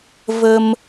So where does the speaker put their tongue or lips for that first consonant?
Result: lips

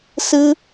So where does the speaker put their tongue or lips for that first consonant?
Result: tongue tip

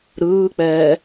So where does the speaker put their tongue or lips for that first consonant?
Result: tongue tip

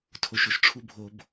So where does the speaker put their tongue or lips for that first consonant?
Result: tongue tip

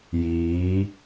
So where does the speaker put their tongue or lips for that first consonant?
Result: palate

